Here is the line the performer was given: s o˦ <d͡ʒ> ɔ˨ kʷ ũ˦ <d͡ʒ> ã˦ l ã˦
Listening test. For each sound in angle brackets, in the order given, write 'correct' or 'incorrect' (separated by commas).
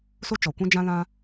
incorrect, correct